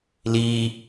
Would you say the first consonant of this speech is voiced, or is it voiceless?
voiced